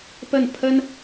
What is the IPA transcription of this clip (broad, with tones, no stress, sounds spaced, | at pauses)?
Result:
p ə˥˩ n pʰ ə˥ n